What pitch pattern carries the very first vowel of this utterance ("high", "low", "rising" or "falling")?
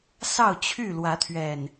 falling